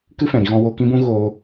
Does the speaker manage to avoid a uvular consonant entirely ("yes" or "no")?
yes